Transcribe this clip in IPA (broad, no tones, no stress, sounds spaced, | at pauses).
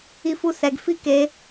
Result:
i f u s ɛ ɡ f i k e